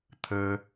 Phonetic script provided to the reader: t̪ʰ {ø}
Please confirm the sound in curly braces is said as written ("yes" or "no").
no